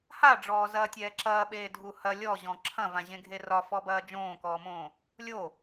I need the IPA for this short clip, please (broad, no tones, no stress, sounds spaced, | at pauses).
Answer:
h a ɖ͡ʐ ɔː z ɐː tʲ ɛː ǁ ɐː ɓ eː dʱ u h ɐ lʲ ɔ ʑ ɔ̃ ǁʰ ɐ̃ v ã ʑ ẽ ɡʱ e r ɒ f ɔ b ɐː d͡ʒ õː k ɔː m õː | lʲ o